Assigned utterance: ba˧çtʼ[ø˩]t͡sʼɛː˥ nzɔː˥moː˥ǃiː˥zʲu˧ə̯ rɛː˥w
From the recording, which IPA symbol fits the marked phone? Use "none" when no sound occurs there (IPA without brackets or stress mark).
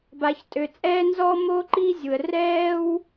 ø˧